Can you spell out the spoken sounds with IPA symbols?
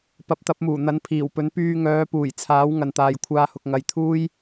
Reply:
p ɐ˨˥ p̚ t̪ ɐ˨˥ p̚ m uː˨˩ n̪ ɐ˨˥ n pʰ iː˨˩ w p ɵ˨˥ n p yː˧ ŋ œː˨˧ p uː˨˩ j t͡sʰ aː˨˥ w ŋ ɐ˨ n t̪ aː˨ j kʷʰ aː˧ h ʊ˨ k̚ ŋ ɐ˨ j t̪ʰ uː˥ j

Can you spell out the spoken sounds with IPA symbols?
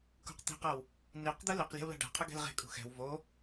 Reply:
k ṳ q t̪ i̤ q ʌ w | n i q d̪ ɯ l i q lʲ ɛ̤ w l a̤ ɖ a̤ qʰ ɯ ɡ ɛ̤ l ʁ e̤ kʼ ṳ x ɛ̤ w v o

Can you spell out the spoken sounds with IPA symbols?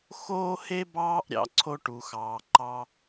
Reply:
x oː˦ h e˦ b ɑː˦ ʔ ɾʲ ɑ̰˨ ǀʰ o˦ ʈ u˨ x ɑː˨ ǃ ɑ˦

